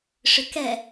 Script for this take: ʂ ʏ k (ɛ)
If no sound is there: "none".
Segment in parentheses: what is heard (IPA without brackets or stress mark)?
ɛ